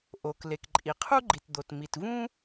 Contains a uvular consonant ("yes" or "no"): yes